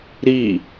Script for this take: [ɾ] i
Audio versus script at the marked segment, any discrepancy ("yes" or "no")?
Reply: no